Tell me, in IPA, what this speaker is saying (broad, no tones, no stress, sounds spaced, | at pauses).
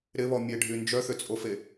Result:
ɾ ɪ β ɔ mʲ e ɖʱ y n d͡ʒ œ θ ʏ t͡sʼ o f e